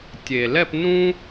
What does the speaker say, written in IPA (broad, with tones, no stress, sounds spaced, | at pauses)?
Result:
tʲ eː˩ l ɛ˦˨ p n ũ˦